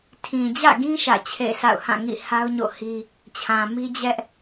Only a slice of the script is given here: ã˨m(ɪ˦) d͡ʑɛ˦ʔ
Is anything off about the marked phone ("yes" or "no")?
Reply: yes